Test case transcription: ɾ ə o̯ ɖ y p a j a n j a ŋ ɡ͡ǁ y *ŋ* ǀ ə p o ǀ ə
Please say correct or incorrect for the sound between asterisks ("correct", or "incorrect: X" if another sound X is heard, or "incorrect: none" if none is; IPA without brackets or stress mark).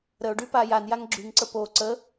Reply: correct